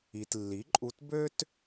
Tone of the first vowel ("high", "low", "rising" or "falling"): low